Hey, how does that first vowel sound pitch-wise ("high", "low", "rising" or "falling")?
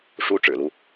high